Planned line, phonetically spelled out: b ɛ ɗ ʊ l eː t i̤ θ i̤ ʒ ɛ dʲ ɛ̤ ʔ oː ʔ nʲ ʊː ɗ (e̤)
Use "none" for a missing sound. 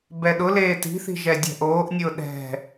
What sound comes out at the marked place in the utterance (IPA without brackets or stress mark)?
ɛ̤